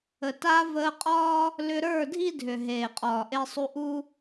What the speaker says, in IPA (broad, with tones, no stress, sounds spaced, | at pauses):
ə˨ t a˧ v əː˧ qʼ ɒː˦ | l ʏ˧ ɾ ə˞˦˨ dʱ i˦ dʱ ʏ˨ ɦ eː˨ qʼ ɒː˨ ʔ e˧ sˤ u˧ ʔ u˦